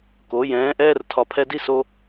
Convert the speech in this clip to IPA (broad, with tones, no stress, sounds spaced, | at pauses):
k o˨˦ j ɛ̃ː˨˦ ʔ ɛː˦ r tʰ ɒ˨ pʰ ɛ˧ d i˦ s o˧